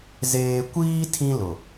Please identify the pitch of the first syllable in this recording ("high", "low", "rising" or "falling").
low